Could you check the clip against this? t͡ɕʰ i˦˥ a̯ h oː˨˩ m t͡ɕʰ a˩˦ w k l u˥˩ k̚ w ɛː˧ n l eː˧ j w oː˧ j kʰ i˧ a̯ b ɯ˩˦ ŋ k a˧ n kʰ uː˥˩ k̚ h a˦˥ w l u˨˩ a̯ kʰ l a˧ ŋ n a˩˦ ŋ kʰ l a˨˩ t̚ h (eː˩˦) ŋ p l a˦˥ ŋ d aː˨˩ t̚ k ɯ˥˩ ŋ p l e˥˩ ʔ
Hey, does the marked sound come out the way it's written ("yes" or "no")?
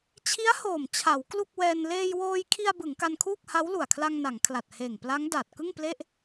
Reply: no